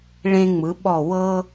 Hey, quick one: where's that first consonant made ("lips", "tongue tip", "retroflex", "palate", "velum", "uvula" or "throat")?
retroflex